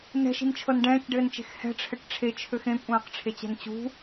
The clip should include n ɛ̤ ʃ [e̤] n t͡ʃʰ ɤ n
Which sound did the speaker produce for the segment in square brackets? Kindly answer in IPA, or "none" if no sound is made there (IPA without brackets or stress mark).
i̤